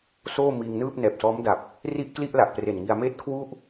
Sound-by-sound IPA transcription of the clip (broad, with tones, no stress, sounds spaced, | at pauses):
s oː˥˩ m iː˧ ŋ n ɯː˥˩ p̚ n ɛː˨˩ p̚ s ɔː˦˥ m d a˨˩ p̚ | r i˥˩ ʔ k l i˥˩ ʔ l a˨˩ ʔ p r e˨˩ n ŋ i˧ a̯ m eː˥˩ t̚ kʰ w u˥˩ ʔ